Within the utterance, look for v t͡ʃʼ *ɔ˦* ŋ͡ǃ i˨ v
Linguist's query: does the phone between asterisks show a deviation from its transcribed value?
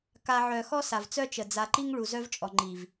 yes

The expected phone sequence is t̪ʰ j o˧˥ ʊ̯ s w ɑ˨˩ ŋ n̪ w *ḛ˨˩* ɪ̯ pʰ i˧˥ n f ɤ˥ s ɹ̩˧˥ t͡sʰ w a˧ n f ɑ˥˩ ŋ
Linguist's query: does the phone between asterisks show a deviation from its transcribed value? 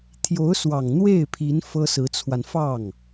yes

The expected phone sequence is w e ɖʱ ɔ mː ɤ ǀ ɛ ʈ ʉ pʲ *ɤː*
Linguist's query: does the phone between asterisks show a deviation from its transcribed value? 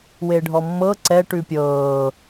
no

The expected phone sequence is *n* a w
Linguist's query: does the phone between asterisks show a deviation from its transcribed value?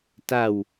yes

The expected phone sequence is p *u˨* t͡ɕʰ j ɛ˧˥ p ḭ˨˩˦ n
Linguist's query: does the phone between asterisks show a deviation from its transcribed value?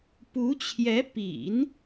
yes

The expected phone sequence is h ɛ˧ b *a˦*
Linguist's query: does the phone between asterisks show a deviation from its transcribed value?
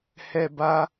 no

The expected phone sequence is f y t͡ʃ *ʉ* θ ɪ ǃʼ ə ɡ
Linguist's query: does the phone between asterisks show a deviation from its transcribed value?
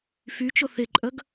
yes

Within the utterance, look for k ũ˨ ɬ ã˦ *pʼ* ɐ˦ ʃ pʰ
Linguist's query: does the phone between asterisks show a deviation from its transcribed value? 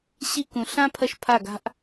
yes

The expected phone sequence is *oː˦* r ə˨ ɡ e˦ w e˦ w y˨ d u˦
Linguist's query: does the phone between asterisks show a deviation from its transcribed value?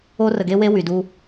yes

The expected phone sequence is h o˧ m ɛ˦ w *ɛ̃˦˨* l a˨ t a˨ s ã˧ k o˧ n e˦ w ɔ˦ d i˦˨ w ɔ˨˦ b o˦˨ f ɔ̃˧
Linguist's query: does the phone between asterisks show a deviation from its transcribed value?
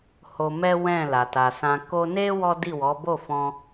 no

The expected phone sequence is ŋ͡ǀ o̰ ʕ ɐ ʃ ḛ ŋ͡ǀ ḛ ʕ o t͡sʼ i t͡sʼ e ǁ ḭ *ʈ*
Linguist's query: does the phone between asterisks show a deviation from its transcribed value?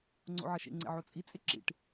no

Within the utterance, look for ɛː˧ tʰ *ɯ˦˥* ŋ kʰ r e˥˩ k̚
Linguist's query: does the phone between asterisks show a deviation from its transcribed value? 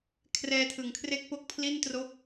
yes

